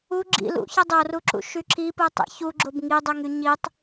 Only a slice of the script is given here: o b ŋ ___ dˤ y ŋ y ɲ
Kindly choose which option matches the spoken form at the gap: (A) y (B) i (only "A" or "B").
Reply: B